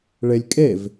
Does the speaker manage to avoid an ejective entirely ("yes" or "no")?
no